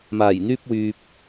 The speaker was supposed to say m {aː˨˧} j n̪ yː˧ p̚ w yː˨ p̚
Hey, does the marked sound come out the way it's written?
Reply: no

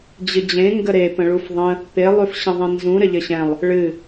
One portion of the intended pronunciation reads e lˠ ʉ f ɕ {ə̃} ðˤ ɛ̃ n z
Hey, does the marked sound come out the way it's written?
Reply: yes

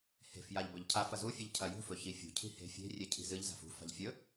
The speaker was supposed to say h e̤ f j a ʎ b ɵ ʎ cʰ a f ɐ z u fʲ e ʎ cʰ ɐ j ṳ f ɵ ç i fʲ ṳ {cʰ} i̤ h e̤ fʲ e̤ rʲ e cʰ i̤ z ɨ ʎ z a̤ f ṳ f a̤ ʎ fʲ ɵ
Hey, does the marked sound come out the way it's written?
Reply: yes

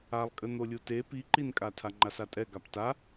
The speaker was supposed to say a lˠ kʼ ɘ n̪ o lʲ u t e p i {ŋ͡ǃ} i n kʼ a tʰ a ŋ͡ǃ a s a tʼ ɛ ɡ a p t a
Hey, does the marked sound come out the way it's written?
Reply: no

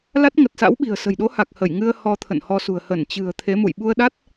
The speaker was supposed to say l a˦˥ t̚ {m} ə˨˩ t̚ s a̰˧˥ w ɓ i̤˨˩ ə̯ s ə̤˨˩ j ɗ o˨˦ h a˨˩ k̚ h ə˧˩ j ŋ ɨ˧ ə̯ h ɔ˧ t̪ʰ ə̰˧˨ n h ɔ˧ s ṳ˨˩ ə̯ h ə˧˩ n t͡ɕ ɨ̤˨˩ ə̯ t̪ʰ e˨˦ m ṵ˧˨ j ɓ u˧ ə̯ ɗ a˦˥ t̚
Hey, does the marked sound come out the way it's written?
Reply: no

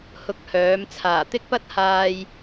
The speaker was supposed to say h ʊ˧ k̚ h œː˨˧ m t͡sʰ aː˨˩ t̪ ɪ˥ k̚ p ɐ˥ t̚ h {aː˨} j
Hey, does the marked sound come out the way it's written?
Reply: yes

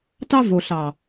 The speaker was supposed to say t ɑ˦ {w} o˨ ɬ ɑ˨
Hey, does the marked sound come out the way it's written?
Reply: no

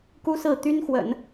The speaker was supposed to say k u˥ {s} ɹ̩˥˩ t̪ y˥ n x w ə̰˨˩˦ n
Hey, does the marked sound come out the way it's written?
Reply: yes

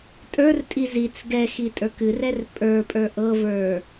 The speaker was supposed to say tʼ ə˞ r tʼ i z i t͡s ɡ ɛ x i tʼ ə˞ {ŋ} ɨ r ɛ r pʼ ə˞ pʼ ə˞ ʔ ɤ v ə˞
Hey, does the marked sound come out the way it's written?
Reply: no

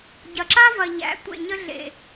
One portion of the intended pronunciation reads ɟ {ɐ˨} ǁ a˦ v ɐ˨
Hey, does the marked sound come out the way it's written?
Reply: yes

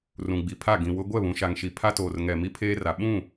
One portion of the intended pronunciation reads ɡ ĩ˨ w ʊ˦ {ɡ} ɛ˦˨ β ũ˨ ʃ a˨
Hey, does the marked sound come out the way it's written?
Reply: no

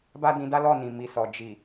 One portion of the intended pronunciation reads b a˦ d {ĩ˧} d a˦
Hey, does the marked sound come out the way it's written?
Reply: yes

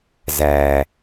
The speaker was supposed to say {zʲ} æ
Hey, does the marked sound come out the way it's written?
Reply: no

